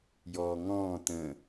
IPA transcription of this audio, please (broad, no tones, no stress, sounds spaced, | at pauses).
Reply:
j ɔː ŋ ɔ̃ː t ə̃